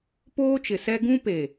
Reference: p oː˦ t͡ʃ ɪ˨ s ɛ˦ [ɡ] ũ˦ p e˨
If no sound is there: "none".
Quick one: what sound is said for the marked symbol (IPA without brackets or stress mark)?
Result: ɡ